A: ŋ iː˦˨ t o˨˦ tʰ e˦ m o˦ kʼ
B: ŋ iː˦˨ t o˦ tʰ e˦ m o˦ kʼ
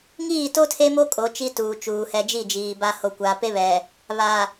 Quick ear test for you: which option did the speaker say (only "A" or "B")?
B